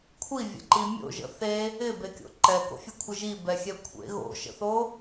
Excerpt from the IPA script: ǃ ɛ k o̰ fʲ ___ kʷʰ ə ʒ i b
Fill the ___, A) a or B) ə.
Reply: B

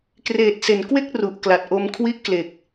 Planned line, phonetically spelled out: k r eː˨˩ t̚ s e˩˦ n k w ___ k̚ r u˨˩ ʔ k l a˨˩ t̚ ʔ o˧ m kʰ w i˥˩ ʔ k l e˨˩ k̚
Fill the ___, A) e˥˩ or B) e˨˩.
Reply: A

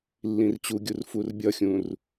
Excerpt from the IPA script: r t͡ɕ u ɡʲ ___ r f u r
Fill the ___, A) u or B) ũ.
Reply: A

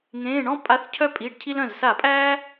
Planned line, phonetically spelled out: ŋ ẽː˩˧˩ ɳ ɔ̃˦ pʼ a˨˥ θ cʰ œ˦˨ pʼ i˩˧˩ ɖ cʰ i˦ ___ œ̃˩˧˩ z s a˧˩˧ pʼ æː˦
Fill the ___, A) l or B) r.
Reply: A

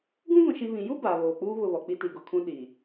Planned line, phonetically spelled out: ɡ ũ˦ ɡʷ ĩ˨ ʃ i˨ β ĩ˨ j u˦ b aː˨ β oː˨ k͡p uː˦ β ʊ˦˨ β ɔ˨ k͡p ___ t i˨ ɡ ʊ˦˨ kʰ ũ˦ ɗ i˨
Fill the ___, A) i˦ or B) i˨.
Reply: A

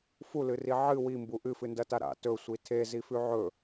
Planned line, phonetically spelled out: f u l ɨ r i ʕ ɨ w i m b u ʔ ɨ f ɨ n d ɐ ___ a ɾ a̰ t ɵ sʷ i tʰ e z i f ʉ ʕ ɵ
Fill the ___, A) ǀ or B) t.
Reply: B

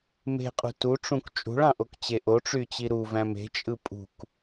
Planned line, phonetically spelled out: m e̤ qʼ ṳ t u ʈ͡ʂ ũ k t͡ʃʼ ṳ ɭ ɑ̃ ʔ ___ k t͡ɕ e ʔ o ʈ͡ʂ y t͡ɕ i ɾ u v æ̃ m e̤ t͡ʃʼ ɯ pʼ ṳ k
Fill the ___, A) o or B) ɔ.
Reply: A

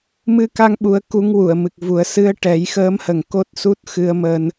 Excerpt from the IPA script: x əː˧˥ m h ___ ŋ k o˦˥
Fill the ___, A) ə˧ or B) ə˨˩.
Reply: B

